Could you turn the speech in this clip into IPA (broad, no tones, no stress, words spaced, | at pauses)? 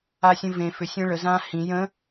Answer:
asʲə̃vẽ fʏsʲẽ ɭəzãː hĩ jə̃